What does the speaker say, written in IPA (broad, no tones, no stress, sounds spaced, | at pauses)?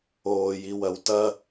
oː j i w ɐ w t ɐ